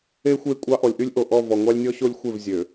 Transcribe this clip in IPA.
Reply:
e˦ xʷ e˦˨ kʷʼ ɑ˦ ʔ ɔ˨ lʲ ʔ y˦ lʲ ʔ o˨ ʔ ɔ˦˨ v ɔ˨ ŋʷ ɑ˦ lʲ nʲ ɔ˦ ɕ o˦ lʲ xʷ e˦˨ v zʲ ø˨

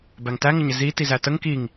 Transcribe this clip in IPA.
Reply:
b æ ŋ t æ ŋ ə ɲ ɪ z i t i z æ t ə ŋ k i ŋ

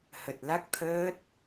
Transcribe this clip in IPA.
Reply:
h ə˨˩ t̚ l a˦˥ k̚ t̪ʰ əː˦˥ t̚

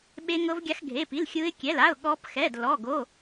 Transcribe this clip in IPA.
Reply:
ɓ e˦˥ ŋ ɤ˦˥ v ɡʲ a˦˥ x ɡʱ e˧˥˧ p i˧˥˧ l xʲ ɯ˦˥ ɪ̯ kʲ ɛ˧˥˧ l a˧˥˧ ʊ̯ ɠ ɔ˦˥ p x ɛ˧˥˧ d l ɔ˧˥˧ ɡ o˧˥˧

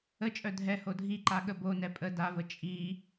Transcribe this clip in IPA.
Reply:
ə t͡ʃʼ œ dʱ ɛ h o dʱ i ǃ a ɠ ə b o n ɛ pʼ ə d a v ə t͡ʃʼ i

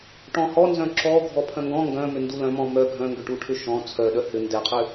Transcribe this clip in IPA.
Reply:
ʈ ɔ̃ h ɔ n z œ̃ ǁ ɔ ɡʱ ɔ pʰ œ̃ ŋ ɡ ɔ̃ ŋ ɡ œ̃ m ʏ n d u l œ̃ m ɔ̃ m œ ɡʱ œ̃ ŋ ɡ ʏ ʈ u ʈʰ ʏ ʃ ɔ̃ t͡sʰ œ ɗ œ h ʏ n d ɛ qʰ ʏ

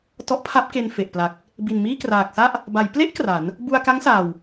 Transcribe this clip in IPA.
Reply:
t ɔ˦˥ ʔ pʰ a˦˥ p̚ k e˧ n f e˨˩ ʔ p l a˨˩ k̚ | b i˨˩ n m iː˥˩ k r aː˨˩ k̚ s a˥˩ ʔ | b a˩˦ j p l e˦˥ ʔ k r a˩˦ n | b u˧ a̯ k a˦˥ ŋ s aː˨˩ w

